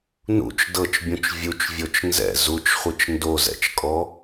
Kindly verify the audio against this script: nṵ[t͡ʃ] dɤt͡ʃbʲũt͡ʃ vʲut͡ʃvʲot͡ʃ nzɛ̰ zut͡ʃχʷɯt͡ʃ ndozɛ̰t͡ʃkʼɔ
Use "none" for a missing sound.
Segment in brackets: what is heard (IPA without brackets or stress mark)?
t͡ʃ